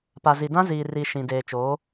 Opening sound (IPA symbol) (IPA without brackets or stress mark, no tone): p